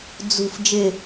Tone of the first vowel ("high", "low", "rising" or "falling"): low